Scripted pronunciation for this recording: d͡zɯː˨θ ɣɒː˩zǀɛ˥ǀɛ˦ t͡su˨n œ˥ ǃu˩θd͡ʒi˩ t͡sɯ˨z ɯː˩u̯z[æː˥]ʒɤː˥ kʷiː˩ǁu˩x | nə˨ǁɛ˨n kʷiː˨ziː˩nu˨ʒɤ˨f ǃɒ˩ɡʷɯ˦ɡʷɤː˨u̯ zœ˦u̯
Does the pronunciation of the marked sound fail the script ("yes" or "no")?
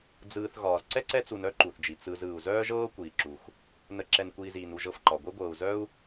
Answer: yes